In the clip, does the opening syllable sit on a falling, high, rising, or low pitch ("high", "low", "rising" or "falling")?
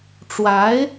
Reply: rising